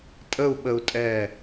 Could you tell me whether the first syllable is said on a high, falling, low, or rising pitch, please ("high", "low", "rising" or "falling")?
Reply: falling